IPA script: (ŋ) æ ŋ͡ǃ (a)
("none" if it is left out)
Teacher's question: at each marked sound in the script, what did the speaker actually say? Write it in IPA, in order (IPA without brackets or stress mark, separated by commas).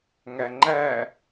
ŋ, æ